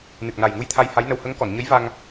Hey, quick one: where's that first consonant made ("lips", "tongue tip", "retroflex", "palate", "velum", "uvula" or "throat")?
tongue tip